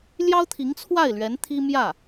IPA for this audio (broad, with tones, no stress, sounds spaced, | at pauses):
l j ɑ˥ ʊ̯ t̪ʰ i˧˥ ŋ t͡sʰ w a˥˩ ɪ̯ l ɥ ɛ˧˥ n t̪ʰ i˥ m j ä˥˩